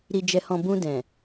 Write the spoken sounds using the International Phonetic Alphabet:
ɾi˨d͡ʒɛ˨hɔ̃˨ bũ˧dɛ̃˨

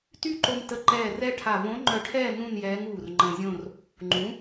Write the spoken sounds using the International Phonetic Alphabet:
ty˥˧ǃo˧m tə˧˥ ǃɛː˧˩ rɛ˥˧ʈʰa˧˩ võ˧˥ŋ͡ǃœ˧ʈʰɛː˥˧ nũ˥˧njɛː˧˥ŋ uː˧˩rŋ͡ǃə̃ː˧zʲõ˥˧r | ŋ͡ǃũ˩˥

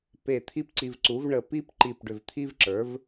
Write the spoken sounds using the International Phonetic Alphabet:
pe˧˩ t̪ʰi˥pǀi˧vǀu˩˥v ɳə˧˩ pi˥pǃi˧˩p ɖʏ˧˩vt̪ʰi˥vǁə˞˩˥v

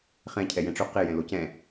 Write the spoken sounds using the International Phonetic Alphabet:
χɛ̃cʰɛ jɛ̃ʈ͡ʂo qe jɛ̃locɛ̃

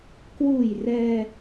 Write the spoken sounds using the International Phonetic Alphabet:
kwuː˨˩j rɛː˧

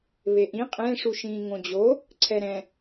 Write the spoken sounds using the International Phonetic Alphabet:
βeʔĩ qʼẽ ʂuʃĩːŋõd͡ʑo | ǀʰɛɾɛ̃

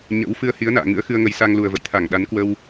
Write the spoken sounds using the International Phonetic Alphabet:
ɲə̰˧˥w fɨ˧ə̯hi˨˦ə̯na̰ː˧˨ ŋɨ̰˧˥ə̯xɨ˧ə̯ŋə˨˦j sa˧ŋlu˨˩ə̯və̰˧˨j t̪ʰa˧˩ŋɗa˨˦nkwə˧w

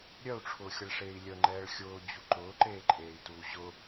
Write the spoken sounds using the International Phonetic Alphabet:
ɾʲœu̯ʈ͡ʂʰʊːxʲəɭʂeːi̯ lʲəŋ͡ǃɛːɭ xʲʊːd͡ʑu ǃʊːǃeːǃʼeːi̯tuː ʑʊ

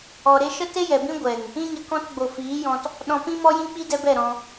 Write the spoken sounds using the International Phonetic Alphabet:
ɔ˨ ɾe˧ʃə˦ te˦jɛ˨bĩ˦ ɡʷɛ˨ŋ | ĩ˦ɲə˧ kɔ̃˧tɡ͡bo˨ fiː˨˦jɔ̃˧t | ɗɔ̃˧pĩ˦mɔ˦jĩ˦ k͡pi˦dɛ˧bɛ˦˨ ɾɔ̃˧

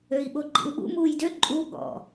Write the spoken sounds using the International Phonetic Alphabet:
øi̯ɓoɡ͡ǃḭu̯ɓṵ muːjdø ǃʼu ɠɔ̰

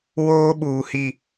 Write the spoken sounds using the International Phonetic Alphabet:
woː˦ɓuː˨hi˨

